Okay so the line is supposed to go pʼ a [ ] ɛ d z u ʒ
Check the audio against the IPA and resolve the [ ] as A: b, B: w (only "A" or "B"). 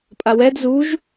B